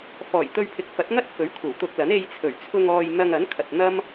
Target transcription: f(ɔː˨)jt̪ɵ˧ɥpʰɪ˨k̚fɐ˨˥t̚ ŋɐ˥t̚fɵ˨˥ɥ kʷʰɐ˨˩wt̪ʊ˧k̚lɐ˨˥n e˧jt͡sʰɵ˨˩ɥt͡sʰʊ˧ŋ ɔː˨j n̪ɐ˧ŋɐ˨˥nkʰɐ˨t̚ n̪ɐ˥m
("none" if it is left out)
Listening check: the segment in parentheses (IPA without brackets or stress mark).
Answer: ɔː˨˩